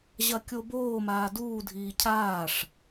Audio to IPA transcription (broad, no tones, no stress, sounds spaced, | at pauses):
ʑ ɐ kʲ o b oː m aː d uː dʱ iː cʰ aː ʂ